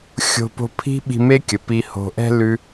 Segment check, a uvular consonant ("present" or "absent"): absent